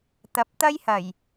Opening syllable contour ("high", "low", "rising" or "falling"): rising